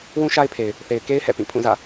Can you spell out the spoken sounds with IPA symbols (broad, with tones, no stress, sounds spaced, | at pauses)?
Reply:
w ũ˦ ʃ a˦ ɪ̯ pʰ e˨ ɪ̯ | θ e˨ ɪ̯ k e˦ ɪ̯ h ɛ̰˦˨ p ĩ˦˨ pʰ ũ˦˨ z ä̰˦˨